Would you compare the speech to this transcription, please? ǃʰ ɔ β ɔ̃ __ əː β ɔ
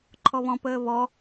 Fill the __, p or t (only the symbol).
p